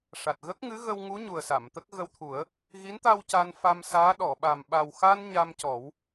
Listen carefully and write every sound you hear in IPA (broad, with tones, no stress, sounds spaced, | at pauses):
ʂ a˨˩ t̚ ɣ ə˦˥ k̚ ŋ ɨ˧˥ ɣ ə˧ w ŋ u˧˥ ɲ u˨˩ ə̯ s a˨˩˨ m t̪ ə˦˥ k̚ ɣ ə˧ w t̪ʰ u˨˩˦ ə̯ | ɣ i˧˥ n t̪ a˧ w c a˧ n f a˧ m s aː˧˥ ɗ ɔ˨˩˨ ɓ a˨˩ m ɓ a˨˩ w x a˧ n ɲ a˧ m c ɔ˨˩˦ w